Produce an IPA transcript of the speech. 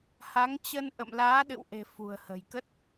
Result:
h a˨˦ ŋ t͡ɕ ə˧ n ʔ ə̰˧˨ m l aː˨˦ ɗ ɨ̰˧˨ w ʔ e̤˨˩ f ṳ˨˩ ə̯ h ə̤˨˩ j k ə˦˥ t̚

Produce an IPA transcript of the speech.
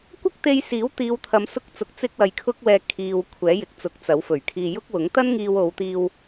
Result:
kʷ ɐ˥ k̚ t̪ e˧ j s iː˨˥ w t̪ iː˨˧ w t̪ʰ ɐ˨˧ m s ʊ˧ k̚ t͡s ʊ˨˥ k̚ t͡s ɪ˧ k̚ w ɐ˨ j kʰ ʊ˧ k̚ w ɛː˨ kʰ iː˨ w kʷʰ ɛː˨˥ j ɪ˨ k̚ t͡s ʊ˨˥ k̚ t͡s ɐ˨˥ w f ɵ˨˩ ɥ kʰ iː˧ j ʊ˥ k̚ w ʊ˨˥ ŋ t̪ ɐ˥ n ŋ iː˧ w o˨˧ w t̪ iː˧ w

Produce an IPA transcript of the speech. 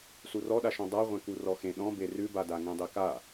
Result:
s u r ɔ ɗ a ʃ ɔ̃ dˤ a ʁʷ ẽ k u r ɔ x ẽ ɗ ɔ̃ b e r ʉ b a d a ŋ ẽ dˤ e k a

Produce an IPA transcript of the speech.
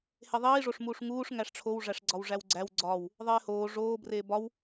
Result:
h e ðˤ iː ʐ o ʂ m uː ʂ ŋ uː ʂ ŋ æ ʂ ʈ͡ʂʰ o w ʐ æ ʂ ɡ͡ǀ ɒ w ʐ æ w ɡ͡ǀ æ w ɡ͡ǀ ɒ w | ðˤ eː h oː ʐ oː b r eː b ɒ w

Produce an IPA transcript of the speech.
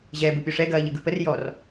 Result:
ʑ ɛː b ɯ pʲ o ʂ ɛ ɡ ɐː ʎ ɯ ɡ ɯ p ə r j ɔ r

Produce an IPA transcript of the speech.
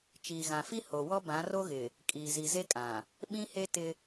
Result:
t͡ʃ iː˨ ɣ ã˨ f i˦ h o˨ w ɔ˦ b ã˨˦ r o˦ ɣ ɪ˨ | kʼ iː˨ z i˨ z e˦ kʼ ã˨ | ɓ ĩ˦ h e˦ t ɪ˦

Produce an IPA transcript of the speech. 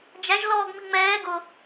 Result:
d͡ʒ æ ʒ l ɔː ɡ m i ŋ͡m ɛː ɡ ʊ

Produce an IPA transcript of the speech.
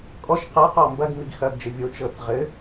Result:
kʼ ɔ ʃ q ɤ q ɔ m b ɐ ɡ m i ɡ x ɐ ɡ d͡ʒ ɘ vʲ o t͡ʃ ɤ t͡s ʁ ɘ

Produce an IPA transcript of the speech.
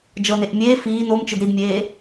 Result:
d͡ʒ ɤ n e ʔ mʲ eː f iː n o m t͡ʃ ɯ d ɾ i d mʲ eː

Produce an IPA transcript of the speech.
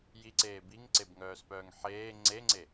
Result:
j i ǀ eː b i ŋ ǀ e b ŋ œː s p œː ŋ ħ eː ŋ͡ǀ e ŋ͡ǀ e

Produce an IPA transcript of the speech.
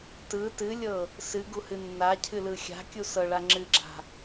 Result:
t ɯ t ɨ lʲ ɤ | s ɨ ɡ u h ɨ nː a cʰ ɨ l ɯ xʲ a̤ kʲ u s ɤ ɭ a ŋ͡ǁ ɨ ɡ͡ǁ a̤

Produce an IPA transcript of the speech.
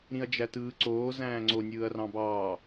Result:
ɾ ĩ ɐ̯ d͡ʒ æ t ɯː ǀ oː z æ̃ː ŋ͡ǀ o nʲ ɯː ɐ̯ r ɑ̃ b ɑː

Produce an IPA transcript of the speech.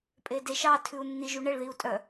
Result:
pʼ e d e ʃ ɑ tʰ ʉ u̯ nː i ʒ u ɳ ɛ ɭ ð i u̯ tʼ œ

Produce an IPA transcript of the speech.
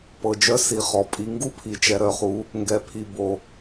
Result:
p ɤ˨ d͡ʒ œ˦ s i˨ χ ɔ˨ pʼ i˨ ŋ ɡ u˦ pʰ i˨ t͡ʃ ɛ˨ ɾ œ˨ χ u˨˦ | ŋ ɡ ɛ˨ pʰ i˨ b o˨

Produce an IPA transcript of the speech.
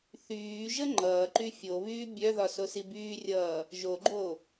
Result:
θ yː ʒ ə ŋ͡ǃ ʌː ǃ y fʲ o β yː bʲ œ ð ɒ s o s i b yː rʲ ʌː | ʒ o ɡ͡ǃ o

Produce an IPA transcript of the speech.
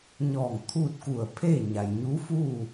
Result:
ɲ ɔː˧˩ ŋ t̪ʰ uː˥˨ t̚ k u˧˩ ə̯ pʰ e˥˨ ɲ a˩ j ɲ u˧˥ f uː˥˨

